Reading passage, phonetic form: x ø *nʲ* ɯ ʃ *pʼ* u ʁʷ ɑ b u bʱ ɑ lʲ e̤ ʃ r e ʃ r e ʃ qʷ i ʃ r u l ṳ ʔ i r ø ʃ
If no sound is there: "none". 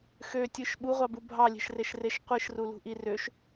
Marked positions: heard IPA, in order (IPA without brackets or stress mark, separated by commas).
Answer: tʲ, ɓ